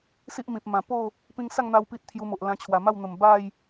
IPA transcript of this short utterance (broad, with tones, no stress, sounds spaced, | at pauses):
s i˦ ʔ m ĩ˨ p̚ m ã˨˩ p o˥˧ | p ĩ˧ ŋ s a˥˧ ŋ n̪ a˧ w p i˦ t̚ t̪ʰ j u˧ m o˨ ʔ l ã˧ t͡ɕʰ w a˨˩ m a˥˧ w n̪ ə˨˩ m b a˥˧ j